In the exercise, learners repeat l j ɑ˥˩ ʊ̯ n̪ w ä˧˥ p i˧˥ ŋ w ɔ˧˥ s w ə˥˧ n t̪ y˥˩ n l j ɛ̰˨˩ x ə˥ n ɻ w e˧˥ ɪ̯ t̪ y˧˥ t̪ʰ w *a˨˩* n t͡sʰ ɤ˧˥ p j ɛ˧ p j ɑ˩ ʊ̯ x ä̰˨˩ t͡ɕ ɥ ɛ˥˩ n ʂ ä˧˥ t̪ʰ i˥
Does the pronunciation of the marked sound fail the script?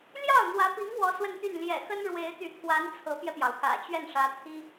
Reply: yes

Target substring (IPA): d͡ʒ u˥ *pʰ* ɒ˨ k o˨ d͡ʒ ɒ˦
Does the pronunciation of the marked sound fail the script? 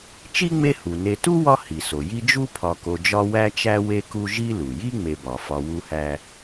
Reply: no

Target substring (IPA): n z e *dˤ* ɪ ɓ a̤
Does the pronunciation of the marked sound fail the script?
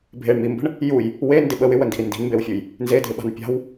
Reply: yes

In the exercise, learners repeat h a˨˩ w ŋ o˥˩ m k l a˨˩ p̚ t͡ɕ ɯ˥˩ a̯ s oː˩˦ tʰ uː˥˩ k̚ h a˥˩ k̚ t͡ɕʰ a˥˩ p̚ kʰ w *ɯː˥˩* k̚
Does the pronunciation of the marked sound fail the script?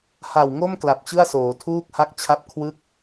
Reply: yes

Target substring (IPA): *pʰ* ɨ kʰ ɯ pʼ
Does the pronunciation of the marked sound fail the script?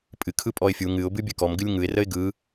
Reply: yes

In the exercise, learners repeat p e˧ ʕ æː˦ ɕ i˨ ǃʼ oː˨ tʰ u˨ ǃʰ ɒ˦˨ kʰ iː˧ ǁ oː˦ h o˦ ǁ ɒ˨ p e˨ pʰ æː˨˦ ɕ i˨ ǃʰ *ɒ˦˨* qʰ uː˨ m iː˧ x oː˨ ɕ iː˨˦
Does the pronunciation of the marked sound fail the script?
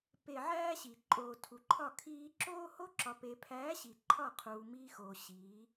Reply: no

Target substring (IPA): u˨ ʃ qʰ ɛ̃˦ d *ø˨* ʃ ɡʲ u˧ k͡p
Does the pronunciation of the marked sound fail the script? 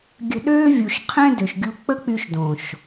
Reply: no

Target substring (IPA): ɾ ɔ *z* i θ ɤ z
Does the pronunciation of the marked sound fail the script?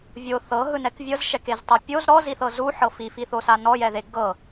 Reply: no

